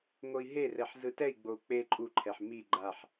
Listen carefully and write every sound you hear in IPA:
ŋ o i̯ ɦ e r ɛ ħ z ɯ t ɛ i̯ ɡ͡b o u̯ k͡p e ǃʼ u ǃʰ ɛ ħ m i ɡ͡ǃ a ħ

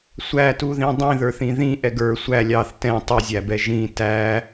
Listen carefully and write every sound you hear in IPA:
sʷ æ t u ð ĩ dˤ ĩ ð ə˞ θ ĩ ð ĩ ʔ ɛ ɡ ə˞ sʷ æ lʲ ɑ θ t ɛ̃ tˤ i zʲ æ b ɛ ʒ ĩ t æ

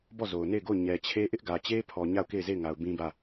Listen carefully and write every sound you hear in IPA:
b ɔ˦˨ z o˨ ʊ̯ n e˦˨ ɪ̯ ɡ o˦˨ ʊ̯ ɲ ɛ˨ t͡ɕʰ e˦ ʔ ɪ˦ ʔ ɡ ä˨ t͡ɕ e˦ pʰ ɔ˨ ɲ a˦˨ ʊ̯ k e˦˨ ɪ̯ z e˦˨ ɪ̯ ŋ a˨ ʊ̯ b ĩ˦ b ä˦˨

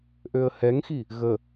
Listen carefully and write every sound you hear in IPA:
ʔ ø ə̯ h ɛ ŋ x i | ɣ ə

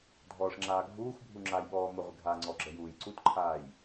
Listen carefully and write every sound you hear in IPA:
dʱ ɔː ʂ ŋ͡ǁ aː ɡʱ uː x bʱ u ŋ͡ǁ a j ɓ ɔː m ə ʁʷ ɪ ɡʱ a ŋ͡ǀ ɔ ɡ͡ǁ ə j uː j ǀ u t ǃʰ aː j

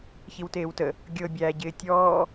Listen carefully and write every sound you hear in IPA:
ç i w t eː w t ə | ɡʲ ɤ bʲ æ ɟ ɪː tʲ ɔː

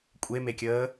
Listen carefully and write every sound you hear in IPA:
kʷʼ e m e kʲ əː

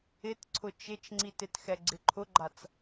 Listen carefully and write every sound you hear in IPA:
ɪ t ǀʰ ʊ t͡ʃ ɪ t͡ʃ ŋ͡ǀ i t ɪ t x ɛ ɡ͡ǀ ɪ ǃʰ ʊ ɡ͡ǃ a t͡s

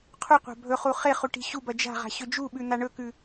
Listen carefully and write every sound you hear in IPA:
qʰ u qʷ a̤ bʱ ɵ χ u χ e χ u ʈ i̤ ɕ u b ɐ d͡ʒ a̤ ʁ a̤ ɕ ɵ d͡ʒ u ɓ ʉ n̪ a ɳ ɵ k ʉ

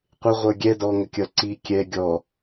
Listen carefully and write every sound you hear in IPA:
qʷ ɪ ʁʷ ə˞ ɡʲ ɛ d ɔ ŋ ə kʲ ʌ ǀ i kʲ ɛ ɡʲ ɔ

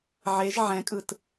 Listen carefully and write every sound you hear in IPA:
ʕ e ʒ ʕ ɛ̃ kʼ ɯ t

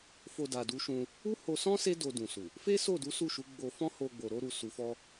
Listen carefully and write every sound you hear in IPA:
f o˧ d a˨ d u˨˦ ʃ ũ˧ | u˦ h o˧ s ɔ̃˦ s e˦ d o˧ d ũ˨ s u˨ | f e˦ s o˦˨ d u˨˦ s u˦˨ ʃ u˨˦ ɡ͡b o˧ f ɔ̃˦ h o˧ ɡ͡b o˨ ɾ o˧ ɾ u˨ s u˨ f ɔ˧

